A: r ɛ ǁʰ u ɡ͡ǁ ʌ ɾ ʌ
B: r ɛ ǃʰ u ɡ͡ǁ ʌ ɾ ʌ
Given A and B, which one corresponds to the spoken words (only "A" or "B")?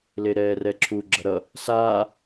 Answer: A